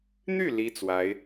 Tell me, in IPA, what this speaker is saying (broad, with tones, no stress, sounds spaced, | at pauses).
n̪ y˥˩ l i˥ t͡s w a˧˥ ɪ̯